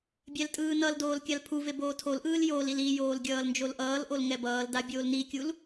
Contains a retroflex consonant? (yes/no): no